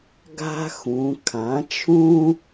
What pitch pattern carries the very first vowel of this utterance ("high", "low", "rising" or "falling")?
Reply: high